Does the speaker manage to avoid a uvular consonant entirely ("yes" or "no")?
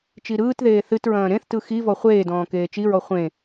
no